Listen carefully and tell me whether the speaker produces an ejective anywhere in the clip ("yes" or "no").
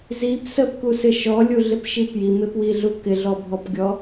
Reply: no